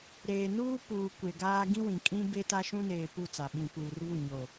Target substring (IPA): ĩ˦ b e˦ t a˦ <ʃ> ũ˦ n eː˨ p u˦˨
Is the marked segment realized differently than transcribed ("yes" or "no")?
no